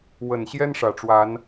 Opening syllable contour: low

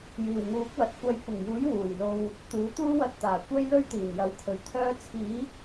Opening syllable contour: low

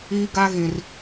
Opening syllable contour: high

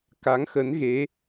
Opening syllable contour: rising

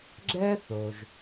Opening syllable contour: high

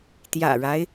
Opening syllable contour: low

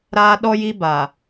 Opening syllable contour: high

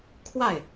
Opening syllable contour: falling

